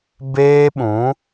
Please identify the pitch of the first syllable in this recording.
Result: high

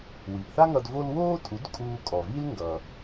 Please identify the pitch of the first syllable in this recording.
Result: low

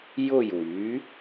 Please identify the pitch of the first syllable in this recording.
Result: falling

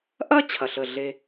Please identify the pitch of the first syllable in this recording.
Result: high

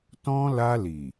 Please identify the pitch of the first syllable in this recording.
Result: high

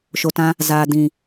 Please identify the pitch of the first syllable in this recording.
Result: low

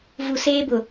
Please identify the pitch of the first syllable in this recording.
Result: low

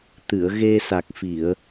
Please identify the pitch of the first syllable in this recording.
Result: low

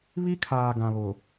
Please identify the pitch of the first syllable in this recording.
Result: high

